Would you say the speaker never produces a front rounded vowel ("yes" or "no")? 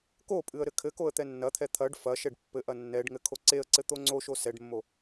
yes